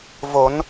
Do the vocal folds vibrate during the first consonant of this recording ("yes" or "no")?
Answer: yes